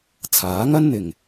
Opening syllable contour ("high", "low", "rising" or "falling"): rising